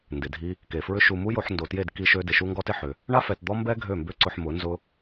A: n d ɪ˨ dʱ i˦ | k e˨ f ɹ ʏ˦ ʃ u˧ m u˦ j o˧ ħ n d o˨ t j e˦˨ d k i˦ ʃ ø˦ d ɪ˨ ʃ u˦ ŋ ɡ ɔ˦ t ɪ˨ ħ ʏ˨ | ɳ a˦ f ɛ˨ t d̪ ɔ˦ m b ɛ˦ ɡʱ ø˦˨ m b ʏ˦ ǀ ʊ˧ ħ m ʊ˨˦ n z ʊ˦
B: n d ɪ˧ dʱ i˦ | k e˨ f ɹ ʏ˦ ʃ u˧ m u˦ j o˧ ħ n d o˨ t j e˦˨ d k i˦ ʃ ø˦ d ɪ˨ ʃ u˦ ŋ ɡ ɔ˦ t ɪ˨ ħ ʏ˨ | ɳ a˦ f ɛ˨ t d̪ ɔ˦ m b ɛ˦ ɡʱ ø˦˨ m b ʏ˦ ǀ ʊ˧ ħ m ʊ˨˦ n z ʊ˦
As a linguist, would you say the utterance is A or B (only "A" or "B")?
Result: A